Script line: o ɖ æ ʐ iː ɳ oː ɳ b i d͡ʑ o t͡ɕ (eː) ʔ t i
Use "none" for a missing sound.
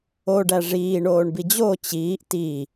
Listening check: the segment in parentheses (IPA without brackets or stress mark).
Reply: iː